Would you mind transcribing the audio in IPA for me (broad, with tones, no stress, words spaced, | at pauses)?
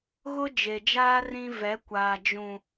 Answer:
ɣʊ˦d͡ʒe˨d͡ʒaː˦ rĩ˦ vɛ˨˦kʷaː˨ d͡ʒũ˨